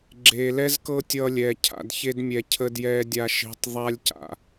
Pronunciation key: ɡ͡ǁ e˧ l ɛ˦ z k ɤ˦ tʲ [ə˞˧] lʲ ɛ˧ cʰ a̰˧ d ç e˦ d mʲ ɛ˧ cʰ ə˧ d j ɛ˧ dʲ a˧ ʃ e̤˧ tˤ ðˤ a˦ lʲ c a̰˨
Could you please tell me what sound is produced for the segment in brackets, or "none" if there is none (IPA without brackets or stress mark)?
ʌ˧